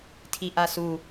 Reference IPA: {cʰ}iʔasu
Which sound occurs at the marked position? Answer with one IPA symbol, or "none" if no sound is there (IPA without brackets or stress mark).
tʰ